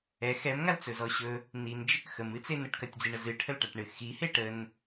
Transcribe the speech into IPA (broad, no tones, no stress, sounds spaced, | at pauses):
ɛ x ɛ m ŋ a l t͡s ɵ z ɔ ɕ ɵ | n i n d͡ʒ ə k x ə m ɨ t͡s e n ə ʈ k ɐ tʲ d͡z i ɳ ə z ɨ ʈʰ ə l ʈ a ʈ ɳ ɨ x i h e ʈ ə n